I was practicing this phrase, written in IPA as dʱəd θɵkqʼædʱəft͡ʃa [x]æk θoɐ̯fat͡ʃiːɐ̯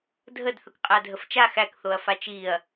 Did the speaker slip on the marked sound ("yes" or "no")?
no